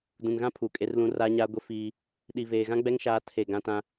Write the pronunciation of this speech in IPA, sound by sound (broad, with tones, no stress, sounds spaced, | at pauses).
d ũ˨ n ɣ ã˦ pʰ uː˨ kʼ e˦ r l ũ˦ r aː˦ ɲ aː˦ ɡʷ e˦ f iː˦ | ɗ i˨ v eː˨ ɣ ã˦ ɡ͡b ɛ˦ ŋ ʃ aː˦ tʰ e˦˨ ɡ ã˦ t ã˦